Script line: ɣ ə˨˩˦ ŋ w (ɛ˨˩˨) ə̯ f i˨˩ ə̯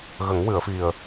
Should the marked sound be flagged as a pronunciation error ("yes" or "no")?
yes